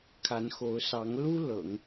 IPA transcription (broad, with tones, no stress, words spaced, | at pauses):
kʰa˧˥nxo˧˥ʊ̯ sɑ˧˥ŋlu˥ lɤ̰˨˩˦ŋ